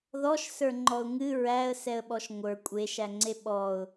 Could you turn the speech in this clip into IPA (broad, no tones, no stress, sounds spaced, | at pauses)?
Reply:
ð ɔ ʃ s ə˞ ŋ͡ǃ ɔ ʊ̯ ŋ ɨ ɹ æ ə̯ s ɛ ə̯ ɓ ɔ ʃ ŋʷ ə˞ kʷʼ e ʃ æ ŋ͡ǀ e ɓ ɔ ʊ̯